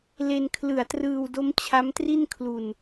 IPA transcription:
l e˧ n kʰ l ɯ˨˩ a̯ t r ɯː˧ w d o˦˥ m t͡ɕʰ a˦˥ m t r i˥˩ n kʰ l u˧ n

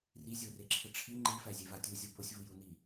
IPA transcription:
r i zʲ o r e ǁʰ ɘ ʈ͡ʂʰ i ŋ͡ǃ i f æ zʲ e v a tʲ u zʲ o b o sʲ v u j u n i

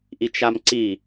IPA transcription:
ʔ i t͡ʃ a m ǀ i

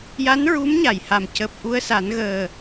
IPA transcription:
j a˧˥ n ɹ u˧˥ m ɲ a˨˩˨ j h a˨˩ m c əː˨˩ p̚ ʔ u˧ ə̯ s a˨˩˦ n ɣ əː˨˩

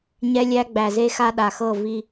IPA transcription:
ɲ ɛ˦ lʲ æ˦ ɡ͡b æ˨ z e˦ x a˦ ɗ a˨ x ɤ˦˨ v i˦

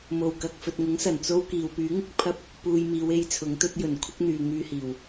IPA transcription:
m o˨˩ w k ɐ˨ k̚ f ɵ˨ t̚ ŋ ʊ˨˥ ŋ s ɐ˨˩ n t͡s o˥ w k iː˨ w p yː˨˥ ŋ ɪ˨˥ k̚ pʰ ɐ˥ p̚ | p uː˧ j m iː˨˧ w e˧ j t͡sʰ ʊ˨˥ ŋ t̪ ɵ˥ t̚ j ɵ˨˩ n kʷʰ ɪ˥ k̚ n̪ yː˨ ŋ yː˧ h iː˨˩ w

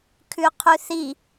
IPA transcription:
kʰ ʉ qʰ ʉ θ i

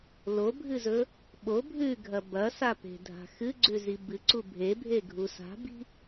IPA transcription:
l o bʱ ɨ z ɵ | ɓ o bʱ ʉ ɡʱ ɐ b ɐ s a p e̤ dʱ a̤ x ɨ ɡ͡ǀ ʉ z i b ɨ ǀ u bʱ e bʱ e ɡʱ u s a̤ b i̤

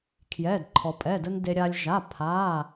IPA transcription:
kʰ j ɛː˩˧˩ d ǃʰ ɔ˩ pʼ ɛ˩˧˩ d ə˧ n d e˧ ɾʲ aː˧ lʲ ʒ a˩˧˩ pʰ aː˩˧˩

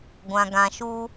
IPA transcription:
ɡʷ ã˨ ɡ ã˨ ʃ u˧

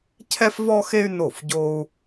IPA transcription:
cʰ ɛ˥ f v ɔ˥ x e˥ y̯ n o˥˩ f ɟ o˥ u̯

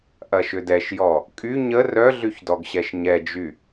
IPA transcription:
ʔ ɐ ʃ ʏ d ɛ ʃ j ɔ | kʼ y ɲ ə r œ ɮ y ç d ɔ ɡ ɕ ɛ ʃ ɲ ɛ d͡ʒ y

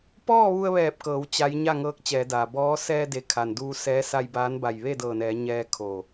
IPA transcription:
p ɔː˥˨ ʋ u˧ ə̯ ʋ ɛː˧˩ p̚ k ɤː˩˧ w t͡ɕ a˧˥ j ɲ a˥˨ ŋ ɤː˧˥ k̚ t͡ɕ ɛː˩˧ d aː˩ b ɔː˧˥ s ɛː˧ d e˩ kʰ a˩ n d uː˧ s ɛː˧˥ s a˧ j b aː˧˥ n b a˧˩ j ʋ e˥˨ d ɤː˧˩ n ɛː˩˧ ɲ ɛː˧ kʰ o˧˩

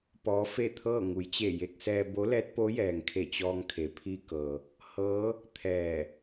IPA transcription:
p ɔː˧˥ f e˥˨ t̪ʰ ɤː˥˨ ŋ u˩˧ j t͡ɕ e˧˩ j e˧ k̚ s ɛː˧ b o˧˥ l ɛː˧˥ t̚ p o˧˥ j ɛː˩ ŋ kʰ e˧˩ t͡ɕ ɔː˧ ŋ kʰ e˩ pʰ i˧ k ɤː˩ | h ɤː˧˥ | t̪ʰ ɛː˧˩

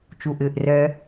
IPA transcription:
t͡ʃ u˩ ʔ ɪː˩ ʔ r ɛ˨

